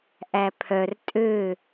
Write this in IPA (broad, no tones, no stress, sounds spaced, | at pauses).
ʔ æ pʰ œ r tʼ ø